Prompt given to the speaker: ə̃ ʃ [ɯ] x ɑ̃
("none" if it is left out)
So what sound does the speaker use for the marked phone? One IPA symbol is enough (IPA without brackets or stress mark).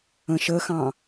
ə